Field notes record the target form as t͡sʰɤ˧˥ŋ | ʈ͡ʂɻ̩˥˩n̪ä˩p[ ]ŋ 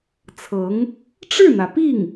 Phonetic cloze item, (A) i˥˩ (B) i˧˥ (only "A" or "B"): A